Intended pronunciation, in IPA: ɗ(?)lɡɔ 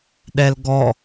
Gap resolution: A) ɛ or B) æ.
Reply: A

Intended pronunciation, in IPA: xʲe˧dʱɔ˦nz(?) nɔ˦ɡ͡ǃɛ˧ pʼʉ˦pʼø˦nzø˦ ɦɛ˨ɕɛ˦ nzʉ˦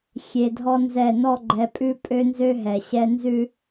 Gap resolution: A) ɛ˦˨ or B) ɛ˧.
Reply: A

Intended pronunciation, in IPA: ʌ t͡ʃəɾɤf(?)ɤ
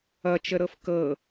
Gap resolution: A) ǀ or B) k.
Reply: B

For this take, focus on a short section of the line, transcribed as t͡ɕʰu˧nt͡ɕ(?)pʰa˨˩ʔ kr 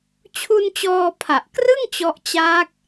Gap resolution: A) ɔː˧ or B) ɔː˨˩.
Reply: A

